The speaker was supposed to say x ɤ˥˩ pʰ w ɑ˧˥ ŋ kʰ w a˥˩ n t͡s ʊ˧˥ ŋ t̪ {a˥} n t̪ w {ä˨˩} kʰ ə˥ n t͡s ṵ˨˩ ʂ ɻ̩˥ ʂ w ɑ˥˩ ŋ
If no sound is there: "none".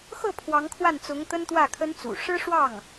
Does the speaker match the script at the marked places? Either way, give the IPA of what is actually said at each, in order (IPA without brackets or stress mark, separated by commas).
ə˥, ä˥˩